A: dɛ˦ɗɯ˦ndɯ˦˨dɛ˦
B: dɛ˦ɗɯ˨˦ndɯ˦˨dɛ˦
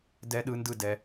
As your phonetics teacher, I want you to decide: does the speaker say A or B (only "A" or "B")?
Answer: A